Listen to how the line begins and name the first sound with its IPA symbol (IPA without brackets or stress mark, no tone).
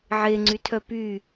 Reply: ʕ